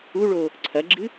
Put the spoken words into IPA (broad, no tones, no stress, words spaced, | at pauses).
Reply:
uɭo | ǀʰɐɡ͡ǁɨ